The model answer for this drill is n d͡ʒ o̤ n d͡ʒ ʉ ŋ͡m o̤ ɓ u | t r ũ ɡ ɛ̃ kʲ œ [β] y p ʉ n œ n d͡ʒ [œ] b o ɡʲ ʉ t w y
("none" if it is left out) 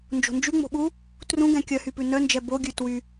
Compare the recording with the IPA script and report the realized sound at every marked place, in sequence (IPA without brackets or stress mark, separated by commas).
h, ɛ